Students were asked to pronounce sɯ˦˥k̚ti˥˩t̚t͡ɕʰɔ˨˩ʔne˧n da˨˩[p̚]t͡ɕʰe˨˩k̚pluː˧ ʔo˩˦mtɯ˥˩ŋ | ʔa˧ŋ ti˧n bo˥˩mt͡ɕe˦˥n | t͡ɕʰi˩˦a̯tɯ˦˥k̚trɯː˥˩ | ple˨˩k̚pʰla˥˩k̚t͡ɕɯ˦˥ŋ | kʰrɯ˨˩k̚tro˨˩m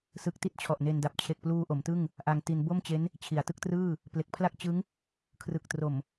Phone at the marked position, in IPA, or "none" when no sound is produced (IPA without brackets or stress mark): p̚